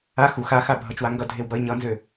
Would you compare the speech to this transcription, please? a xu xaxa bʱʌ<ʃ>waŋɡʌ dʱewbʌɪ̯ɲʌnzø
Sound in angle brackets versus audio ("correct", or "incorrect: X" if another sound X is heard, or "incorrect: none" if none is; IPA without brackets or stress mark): incorrect: t͡ʃ